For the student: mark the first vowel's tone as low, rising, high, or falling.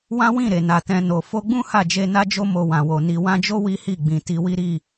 high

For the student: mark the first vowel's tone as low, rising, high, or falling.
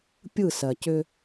falling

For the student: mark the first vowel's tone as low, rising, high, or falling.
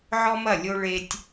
high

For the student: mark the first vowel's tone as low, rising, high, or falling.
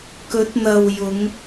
rising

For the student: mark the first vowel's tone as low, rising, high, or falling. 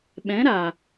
rising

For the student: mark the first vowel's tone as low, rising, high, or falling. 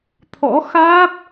rising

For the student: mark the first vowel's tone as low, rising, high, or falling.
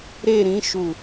falling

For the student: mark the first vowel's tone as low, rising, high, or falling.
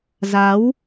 rising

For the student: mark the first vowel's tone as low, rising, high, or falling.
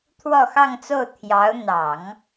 falling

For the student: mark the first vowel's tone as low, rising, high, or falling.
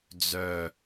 falling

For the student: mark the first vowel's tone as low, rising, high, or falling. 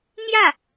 falling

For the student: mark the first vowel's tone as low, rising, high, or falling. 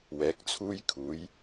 rising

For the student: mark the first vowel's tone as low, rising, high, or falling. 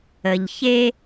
low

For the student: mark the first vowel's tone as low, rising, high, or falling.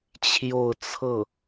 falling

